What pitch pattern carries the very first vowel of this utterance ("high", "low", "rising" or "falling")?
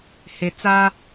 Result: low